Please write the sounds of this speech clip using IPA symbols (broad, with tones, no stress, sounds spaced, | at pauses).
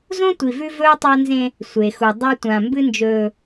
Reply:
z õ˦ tʷ i˨ v ʉ˦ v ɵː˦ tˤ a˦ n z ẽ˦ | sʷ e˨ x u˨ dˤ a˦ tʷ ã˨ m b ɨ˦ n d͡ʒ ɵː˨